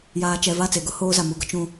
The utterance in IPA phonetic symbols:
jaː˨t͡ʃɛ˨ va˦˨t͡se˨ɡʊ˦ hoː˦za˨ mu˦ɡʊ˦ t͡ʃũ˨

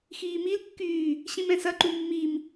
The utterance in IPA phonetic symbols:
xiːmilkːyː | ɕĩmɛ̃sɐǃu mːim

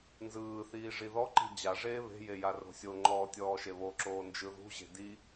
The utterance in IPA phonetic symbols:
nzɯːθiː ʐiðɔǃi̤ d͡ʑaʐeː βe̤je jaro̤sʲoŋ͡ǃɔː tʲɔːʃeβoǁoː nd͡ʒɯðṳʑe̤ di

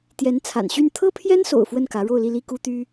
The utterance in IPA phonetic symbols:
t̪jɛ˧˥n t͡sʰa̰˨˩nɕy˥˩n t̪ʰɤ˥pʰjɛ˥nso̰˨˩ʊ̯ fwə˥˩nkä˧˥ ɻo˥˧ʊ̯li˥˧ li˥˩ku˥t̪y˥

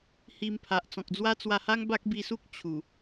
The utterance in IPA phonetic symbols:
hi˧mpʰa˨ʔ t͡sɔ̃˨k̚d͡zwa˦ t͡swa˧ha˦ŋ ba˦k̚bi˧su˦k̚ t͡ɕʰu˨˩

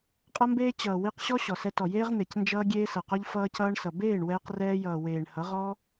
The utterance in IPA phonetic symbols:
qʼʌ˦mbeː˦ t͡ɕʌː˨ wi˧qɕɔ˦ ɕɔ˨ sɛ˧tɔ˨jeː˦ʁ n̪e˨cnd͡ʒʌː˦ ɡʲeː˦sʌ˨qɔ˦ʎ fʌː˦cʌː˦ɳsʌ˨ beː˦˨ɳwɛː˧qrɛː˧jʌː˨ weː˨ɳhʌ˨˦ʁɔ˦

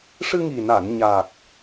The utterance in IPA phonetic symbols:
ʂɨ˧ŋi˨˩na˨˩˨n ɲa˨˩k̚

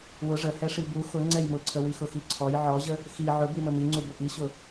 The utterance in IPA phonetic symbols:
wʊ ʐəhɛʂi bu xʊ ŋ͡ǀɛjmʊǀʰəwi xʊxiǀʰɔj ʕɔʑə | xi ʕʊbimə miŋ͡ǀubʊ ʔiɕʊ

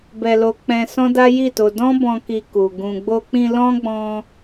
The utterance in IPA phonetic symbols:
bɛ˧lo˧ k͡pɛ̃˧ sɔ̃˦da˦ji˦˨to˧ dɔ̃˦bɔ̃˧ ki˧ku˨ ɡũ˨ɡ͡bo˧k͡pĩ˧ lɔ̃˦ɡ͡bɔ̃˧

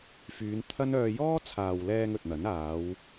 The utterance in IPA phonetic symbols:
fyː˨˧nt̪ʰɐ˥nœː˧ jɔː˥ t͡sʰaː˨wlɛː˧ŋ ɵ˨t̚n̪ɐ˨˥n aː˨˧w

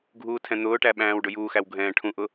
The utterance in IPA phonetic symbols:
ɡʱuːtʰɛ̃n̪ʊːʈæ ɓæ̃ːwɖʊjuːxæw ɡʱɛ̃ːʈʰũʔʊ

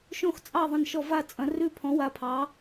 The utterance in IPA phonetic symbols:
ʃõ˦˨xt͡sʼɑ˦˨ ðˤɐ̃˦˨nʃɔ˦˨ va˦˨ t͡sʼɐ̃˨˦ rʉ˦˨ pʰɔ̃˨˦wa˨˦pʰɑ˨˦

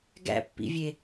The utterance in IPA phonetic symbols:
ɡæ̰ pːḭvʲe

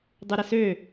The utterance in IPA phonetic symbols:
dˤuɾəsø

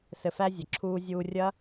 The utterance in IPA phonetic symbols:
sɘ˨fæ˧ zʲɘ˨ǁʰuː˧ zʲuː˧rʲɐ˦

